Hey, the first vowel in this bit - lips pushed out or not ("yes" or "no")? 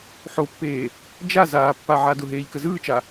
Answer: yes